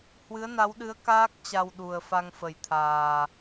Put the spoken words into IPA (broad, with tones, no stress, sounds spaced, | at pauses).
h w ɨ˨˦ ə̯ n a˨˦ w ɗ ɨ˨˦ ə̯ k aː˦˥ k̚ t͡ɕ a˧ w ɗ u˨˩ ə̯ f a˧ ŋ f ə˨˩ j t̪ʰ aː˨˩